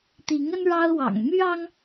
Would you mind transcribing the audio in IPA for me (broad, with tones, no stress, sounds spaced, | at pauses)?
t̪ i˨˦ ŋ ə˦ n ɻ ɑ˦ ʊ̯ w ɑ̰˨˩ ŋ m y˦ ɑ˦ ŋ